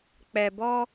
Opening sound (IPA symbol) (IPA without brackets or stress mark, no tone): k͡p